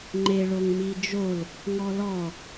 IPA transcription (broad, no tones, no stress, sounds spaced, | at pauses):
ŋ͡ǃ e ɭ o ŋ m i d͡ʒ o l | ŋ ɔ l ɔ